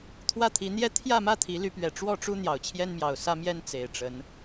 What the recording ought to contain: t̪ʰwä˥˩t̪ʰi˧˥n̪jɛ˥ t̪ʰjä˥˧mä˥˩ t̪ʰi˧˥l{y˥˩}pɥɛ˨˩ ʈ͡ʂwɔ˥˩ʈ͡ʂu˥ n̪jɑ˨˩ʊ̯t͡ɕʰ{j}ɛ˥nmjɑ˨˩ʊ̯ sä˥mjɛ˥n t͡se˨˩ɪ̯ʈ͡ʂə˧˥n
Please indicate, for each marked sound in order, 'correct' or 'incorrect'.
incorrect: y˧˥, correct

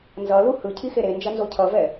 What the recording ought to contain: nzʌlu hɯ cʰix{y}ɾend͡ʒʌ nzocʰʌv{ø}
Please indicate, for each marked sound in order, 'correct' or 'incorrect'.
incorrect: e, incorrect: ɛ

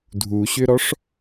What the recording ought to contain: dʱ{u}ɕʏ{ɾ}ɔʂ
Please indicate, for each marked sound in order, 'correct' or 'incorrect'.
correct, correct

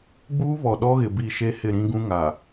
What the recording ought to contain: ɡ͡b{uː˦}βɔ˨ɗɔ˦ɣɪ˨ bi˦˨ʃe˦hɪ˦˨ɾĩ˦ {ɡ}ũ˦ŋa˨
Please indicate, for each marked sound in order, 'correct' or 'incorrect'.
correct, correct

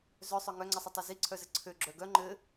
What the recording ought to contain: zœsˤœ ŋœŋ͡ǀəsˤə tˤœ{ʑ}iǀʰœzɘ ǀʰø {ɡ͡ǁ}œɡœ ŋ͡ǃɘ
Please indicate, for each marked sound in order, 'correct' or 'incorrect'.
incorrect: z, correct

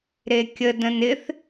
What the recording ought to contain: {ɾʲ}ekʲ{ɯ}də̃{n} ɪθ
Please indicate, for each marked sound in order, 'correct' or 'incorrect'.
incorrect: ɾ, incorrect: ə, correct

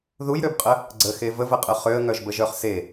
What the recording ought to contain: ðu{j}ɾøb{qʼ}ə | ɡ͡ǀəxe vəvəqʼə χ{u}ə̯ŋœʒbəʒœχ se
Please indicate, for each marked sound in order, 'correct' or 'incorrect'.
correct, correct, incorrect: ø

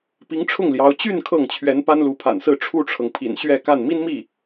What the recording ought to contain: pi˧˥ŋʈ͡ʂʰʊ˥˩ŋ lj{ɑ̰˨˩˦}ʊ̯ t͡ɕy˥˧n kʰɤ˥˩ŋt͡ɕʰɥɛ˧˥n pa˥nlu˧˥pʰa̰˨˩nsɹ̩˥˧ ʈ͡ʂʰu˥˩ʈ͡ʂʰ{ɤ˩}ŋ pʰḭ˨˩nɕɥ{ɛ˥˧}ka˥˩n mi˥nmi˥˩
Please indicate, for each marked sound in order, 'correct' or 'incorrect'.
incorrect: ɑ˧˥, correct, correct

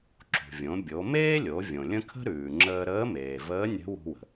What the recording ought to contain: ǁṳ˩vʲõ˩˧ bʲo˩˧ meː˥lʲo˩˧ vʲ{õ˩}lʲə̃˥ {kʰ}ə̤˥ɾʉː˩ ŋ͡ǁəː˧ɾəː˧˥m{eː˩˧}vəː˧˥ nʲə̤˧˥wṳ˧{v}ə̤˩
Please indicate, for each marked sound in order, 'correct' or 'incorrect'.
correct, correct, incorrect: eː˩, incorrect: w

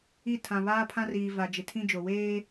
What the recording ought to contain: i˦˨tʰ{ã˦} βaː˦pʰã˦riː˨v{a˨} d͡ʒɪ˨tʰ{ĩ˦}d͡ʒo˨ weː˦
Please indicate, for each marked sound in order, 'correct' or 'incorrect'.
incorrect: ã˨, correct, correct

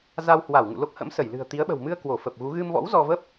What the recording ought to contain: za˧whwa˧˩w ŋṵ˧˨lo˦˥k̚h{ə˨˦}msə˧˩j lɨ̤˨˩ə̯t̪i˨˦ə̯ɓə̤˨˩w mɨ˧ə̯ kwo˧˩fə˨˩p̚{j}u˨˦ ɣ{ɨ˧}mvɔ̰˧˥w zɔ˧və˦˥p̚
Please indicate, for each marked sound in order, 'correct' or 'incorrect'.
incorrect: ə̰˧˥, incorrect: ɣ, correct

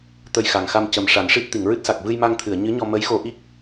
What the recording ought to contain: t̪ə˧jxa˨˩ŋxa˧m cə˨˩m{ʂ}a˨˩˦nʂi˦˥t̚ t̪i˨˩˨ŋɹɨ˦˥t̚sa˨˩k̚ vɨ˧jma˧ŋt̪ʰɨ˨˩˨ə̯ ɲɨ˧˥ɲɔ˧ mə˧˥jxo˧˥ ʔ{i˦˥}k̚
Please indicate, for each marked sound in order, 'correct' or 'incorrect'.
correct, correct

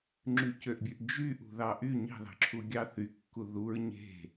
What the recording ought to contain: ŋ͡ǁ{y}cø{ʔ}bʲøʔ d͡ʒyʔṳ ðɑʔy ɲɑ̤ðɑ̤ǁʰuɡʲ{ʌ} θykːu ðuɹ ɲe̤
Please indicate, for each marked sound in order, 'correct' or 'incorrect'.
correct, correct, incorrect: ɑ

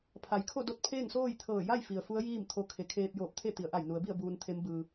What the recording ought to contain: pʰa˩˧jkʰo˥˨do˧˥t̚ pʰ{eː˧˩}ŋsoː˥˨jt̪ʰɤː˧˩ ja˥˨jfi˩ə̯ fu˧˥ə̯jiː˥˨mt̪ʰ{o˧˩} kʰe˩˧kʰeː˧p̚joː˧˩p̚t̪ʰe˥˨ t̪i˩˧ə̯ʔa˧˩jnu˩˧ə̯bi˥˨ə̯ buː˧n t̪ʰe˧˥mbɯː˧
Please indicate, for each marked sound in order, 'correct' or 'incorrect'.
incorrect: eː˥˨, incorrect: o˧

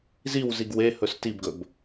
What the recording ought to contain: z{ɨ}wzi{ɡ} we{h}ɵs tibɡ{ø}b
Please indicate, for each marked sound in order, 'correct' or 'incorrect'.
incorrect: i, correct, correct, incorrect: ɵ

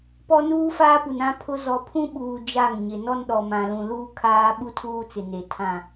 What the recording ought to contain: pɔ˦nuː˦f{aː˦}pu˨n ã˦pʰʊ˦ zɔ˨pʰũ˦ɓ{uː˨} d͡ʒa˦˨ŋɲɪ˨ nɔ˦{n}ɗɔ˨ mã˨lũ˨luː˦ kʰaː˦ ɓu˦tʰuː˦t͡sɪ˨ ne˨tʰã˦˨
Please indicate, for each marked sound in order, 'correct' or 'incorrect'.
correct, correct, correct

